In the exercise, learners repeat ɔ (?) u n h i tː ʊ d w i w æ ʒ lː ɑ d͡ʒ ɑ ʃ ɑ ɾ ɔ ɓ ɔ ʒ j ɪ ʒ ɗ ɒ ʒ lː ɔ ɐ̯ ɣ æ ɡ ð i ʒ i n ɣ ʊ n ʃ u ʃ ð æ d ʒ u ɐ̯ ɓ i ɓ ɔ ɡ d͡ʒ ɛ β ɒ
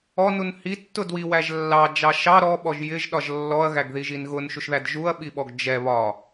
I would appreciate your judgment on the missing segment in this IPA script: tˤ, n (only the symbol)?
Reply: n